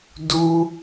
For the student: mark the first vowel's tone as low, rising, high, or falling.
high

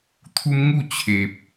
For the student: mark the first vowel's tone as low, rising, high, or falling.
high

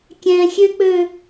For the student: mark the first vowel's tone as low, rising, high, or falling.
high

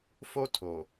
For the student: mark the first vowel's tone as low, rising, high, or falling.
high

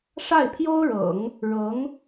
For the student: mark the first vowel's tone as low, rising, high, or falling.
falling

